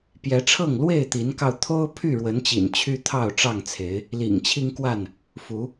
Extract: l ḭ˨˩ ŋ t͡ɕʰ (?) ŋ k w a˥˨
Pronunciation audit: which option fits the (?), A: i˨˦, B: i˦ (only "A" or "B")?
B